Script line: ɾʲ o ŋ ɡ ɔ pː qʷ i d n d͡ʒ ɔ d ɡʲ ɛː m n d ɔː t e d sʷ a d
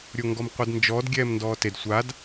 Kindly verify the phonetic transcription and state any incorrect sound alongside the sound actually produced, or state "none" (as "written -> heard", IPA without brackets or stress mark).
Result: pː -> m